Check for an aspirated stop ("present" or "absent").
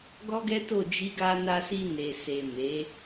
absent